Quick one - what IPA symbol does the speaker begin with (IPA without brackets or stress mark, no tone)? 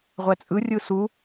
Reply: ʁʷ